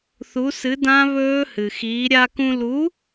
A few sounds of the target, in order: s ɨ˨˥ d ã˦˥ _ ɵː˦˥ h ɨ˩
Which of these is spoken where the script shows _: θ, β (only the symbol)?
β